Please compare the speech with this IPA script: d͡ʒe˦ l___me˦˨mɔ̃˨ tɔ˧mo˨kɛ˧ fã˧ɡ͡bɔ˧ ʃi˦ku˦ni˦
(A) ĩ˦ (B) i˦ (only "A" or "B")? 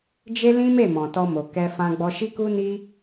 A